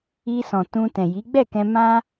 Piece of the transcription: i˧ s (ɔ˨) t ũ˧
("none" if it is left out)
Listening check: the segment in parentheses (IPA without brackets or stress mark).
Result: ɔ̃˨